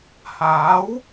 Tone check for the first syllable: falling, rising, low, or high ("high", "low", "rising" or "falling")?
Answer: rising